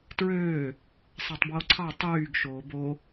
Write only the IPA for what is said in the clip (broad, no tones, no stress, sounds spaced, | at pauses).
t ɹ øː | sˤ æ tˤ b w o ǀʰ ɑ tˤ yː ɡ ʃ oː b o